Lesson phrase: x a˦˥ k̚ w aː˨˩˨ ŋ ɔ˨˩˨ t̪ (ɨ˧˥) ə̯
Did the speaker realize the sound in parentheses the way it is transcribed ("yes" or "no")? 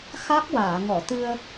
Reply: no